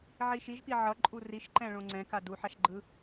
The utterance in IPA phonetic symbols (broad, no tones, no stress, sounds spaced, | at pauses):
ʕ i ʃ i ʒ p i ʕ ʌ ǃʼ u r i ʃ ǃ ɛ̃ ɭ õ ŋ͡ǀ ɛ̃ k a d u ħ a ʃ ɡ͡ǃ ɯ